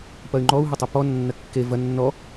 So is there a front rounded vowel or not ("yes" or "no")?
yes